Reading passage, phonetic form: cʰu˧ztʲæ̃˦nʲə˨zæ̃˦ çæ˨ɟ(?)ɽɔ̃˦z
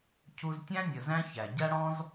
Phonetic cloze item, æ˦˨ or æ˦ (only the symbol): æ˦